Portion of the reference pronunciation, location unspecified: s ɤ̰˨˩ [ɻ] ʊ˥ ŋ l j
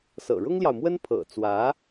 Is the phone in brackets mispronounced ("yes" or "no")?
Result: no